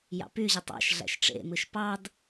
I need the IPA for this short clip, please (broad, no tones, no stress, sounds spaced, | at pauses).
j ɑ̰ p y ʑ ɯ tˤ ɑ̰ ʃ ɮ æ̰ ʃ ʈ͡ʂ ḛ m ɯ ʃ p ɑ d